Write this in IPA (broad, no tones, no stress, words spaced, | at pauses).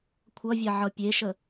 kʷʰʌvʲa ʕʌpʲeʃə